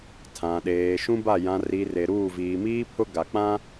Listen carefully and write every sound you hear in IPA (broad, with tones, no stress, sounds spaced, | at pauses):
tʰ ã˨ ɗ eː˨ ʃ ũ˦ b a˦˨ j ã˨ r i˨ r e˨ ɾ uː˦˨ v iː˨ m iː˦ pʰ ʊ˦ ɡ a˨ k͡p ã˦